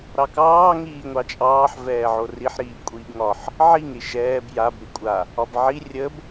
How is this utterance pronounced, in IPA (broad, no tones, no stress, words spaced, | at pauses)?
ɾɑkɑː ŋiːŋʷɑt͡ʃʼɑːħ vɛːʕoriħ ɾiːbkʷʼiːbŋɒħ | ʕiŋ ɾiʃɛːb jab ɾikʷʼa | ɒbʕi rʲəb